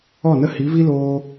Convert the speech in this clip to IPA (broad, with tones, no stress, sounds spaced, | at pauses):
ɔ˦˨ n ə˦ h i˨˦ v i˦ l oː˧